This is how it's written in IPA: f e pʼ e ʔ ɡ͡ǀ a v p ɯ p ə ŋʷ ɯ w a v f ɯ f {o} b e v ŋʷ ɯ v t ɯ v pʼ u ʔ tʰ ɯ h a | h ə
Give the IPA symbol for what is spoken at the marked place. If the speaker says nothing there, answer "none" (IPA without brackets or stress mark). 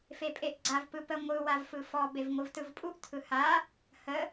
ɔ